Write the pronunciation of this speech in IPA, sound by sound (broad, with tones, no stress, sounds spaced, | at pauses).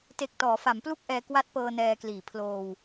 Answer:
t e˨˩ k̚ t ɔː˩˦ f a˩˦ m p l u˥˩ k̚ ʔ ɛː˧ k w a˦˥ t̚ p ɤː˧ n ɛː˧ k l iː˨˩ pʰ l oː˧ w